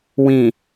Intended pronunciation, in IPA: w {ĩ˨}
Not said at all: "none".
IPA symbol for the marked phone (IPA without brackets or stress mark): ĩ˨